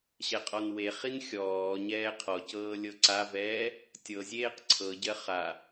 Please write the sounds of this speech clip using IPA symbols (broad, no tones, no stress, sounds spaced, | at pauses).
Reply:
ɕ ɛ qʼ ɔ n w e χ i n xʲ ɔː ɲ ɛː qʰ ɔ c ɤː lʲ ɤ ǀ a v ɛː | tʲ ɤ zʲ eː q ǀʰ ɤ ɟ ɜ χ a